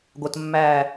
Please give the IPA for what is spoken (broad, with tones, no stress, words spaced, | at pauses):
ɡʷə˨tmːæː˦˨